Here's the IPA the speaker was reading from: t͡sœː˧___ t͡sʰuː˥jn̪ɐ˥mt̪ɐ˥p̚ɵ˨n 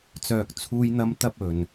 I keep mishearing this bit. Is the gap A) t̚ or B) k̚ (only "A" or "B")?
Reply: B